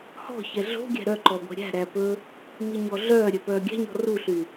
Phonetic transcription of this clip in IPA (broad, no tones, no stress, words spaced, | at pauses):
hɔ̤çɛ ɮo̤ɡʲæ̤ ɾœǃɔ ɡʷɛ̤ɾʲæ̤ ɾæpɵ | miɲɔɮœː ɾʲœpœːɡʲæ̤ɲɔ̤ ruɬy